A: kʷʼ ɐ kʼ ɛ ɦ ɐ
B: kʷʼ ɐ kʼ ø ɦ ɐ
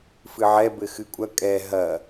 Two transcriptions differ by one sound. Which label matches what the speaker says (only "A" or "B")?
A